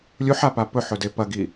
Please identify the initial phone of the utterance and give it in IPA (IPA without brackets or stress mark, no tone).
lʲ